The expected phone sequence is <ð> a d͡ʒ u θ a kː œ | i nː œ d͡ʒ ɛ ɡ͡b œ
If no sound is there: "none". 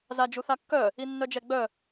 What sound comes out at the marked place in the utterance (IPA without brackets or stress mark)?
z